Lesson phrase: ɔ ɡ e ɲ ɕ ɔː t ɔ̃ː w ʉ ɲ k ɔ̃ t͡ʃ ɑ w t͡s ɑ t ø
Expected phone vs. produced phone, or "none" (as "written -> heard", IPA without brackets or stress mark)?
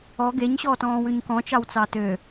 none